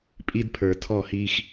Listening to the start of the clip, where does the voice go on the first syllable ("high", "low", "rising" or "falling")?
high